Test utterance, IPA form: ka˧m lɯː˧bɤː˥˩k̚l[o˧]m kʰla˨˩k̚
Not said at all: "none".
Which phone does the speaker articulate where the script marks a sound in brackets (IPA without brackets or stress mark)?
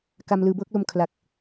o˧